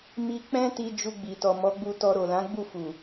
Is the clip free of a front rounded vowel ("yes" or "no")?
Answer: yes